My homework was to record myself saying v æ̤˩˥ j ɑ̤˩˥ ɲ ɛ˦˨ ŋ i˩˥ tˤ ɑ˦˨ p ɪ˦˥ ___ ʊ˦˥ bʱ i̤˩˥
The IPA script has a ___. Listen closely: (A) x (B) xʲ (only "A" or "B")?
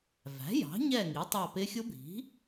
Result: B